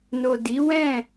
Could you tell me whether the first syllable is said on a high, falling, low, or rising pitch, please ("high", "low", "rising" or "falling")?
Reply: low